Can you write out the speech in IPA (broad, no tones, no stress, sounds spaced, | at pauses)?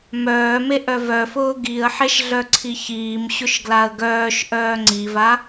m œː m e ʔ œ v œ f ʊː ɡ i ə̯ ħ e ʃ ɮ œ ǀʰ i ç iː m ɕ ʊ ʃ ɡ l a ə̯ ɡ œː ʃ ʔ œː ŋ͡ǀ i v a